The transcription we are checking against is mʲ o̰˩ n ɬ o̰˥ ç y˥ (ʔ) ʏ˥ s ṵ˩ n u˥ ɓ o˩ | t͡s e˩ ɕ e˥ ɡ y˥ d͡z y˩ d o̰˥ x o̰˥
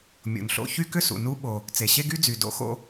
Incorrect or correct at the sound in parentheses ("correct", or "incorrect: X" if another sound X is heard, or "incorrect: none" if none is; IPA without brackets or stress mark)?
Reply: incorrect: k